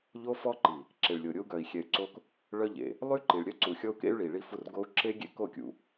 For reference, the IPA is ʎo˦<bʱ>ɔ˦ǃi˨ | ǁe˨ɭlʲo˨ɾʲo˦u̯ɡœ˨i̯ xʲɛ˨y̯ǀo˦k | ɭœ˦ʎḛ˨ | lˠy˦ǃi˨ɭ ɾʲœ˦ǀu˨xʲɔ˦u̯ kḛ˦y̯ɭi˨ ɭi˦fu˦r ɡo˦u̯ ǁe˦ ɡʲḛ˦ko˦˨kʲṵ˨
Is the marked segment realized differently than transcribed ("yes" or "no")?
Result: yes